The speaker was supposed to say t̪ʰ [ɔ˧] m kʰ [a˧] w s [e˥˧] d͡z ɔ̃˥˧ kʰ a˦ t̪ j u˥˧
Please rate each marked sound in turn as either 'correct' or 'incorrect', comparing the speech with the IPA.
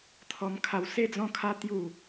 correct, correct, correct

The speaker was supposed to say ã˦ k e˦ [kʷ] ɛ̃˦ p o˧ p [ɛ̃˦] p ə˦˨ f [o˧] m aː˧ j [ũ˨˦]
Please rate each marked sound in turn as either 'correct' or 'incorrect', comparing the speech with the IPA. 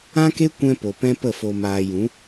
correct, correct, correct, correct

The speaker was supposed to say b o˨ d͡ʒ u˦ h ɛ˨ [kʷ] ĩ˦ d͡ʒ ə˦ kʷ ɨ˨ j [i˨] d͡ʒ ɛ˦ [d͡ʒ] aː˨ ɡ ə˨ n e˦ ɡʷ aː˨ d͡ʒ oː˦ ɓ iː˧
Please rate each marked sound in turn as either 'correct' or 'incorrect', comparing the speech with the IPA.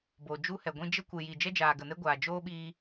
incorrect, correct, correct

